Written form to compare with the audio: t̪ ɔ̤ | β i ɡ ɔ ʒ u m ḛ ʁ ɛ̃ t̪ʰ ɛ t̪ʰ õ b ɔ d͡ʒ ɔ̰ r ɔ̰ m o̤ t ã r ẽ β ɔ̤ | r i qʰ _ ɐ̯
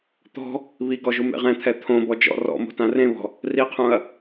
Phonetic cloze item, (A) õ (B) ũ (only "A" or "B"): B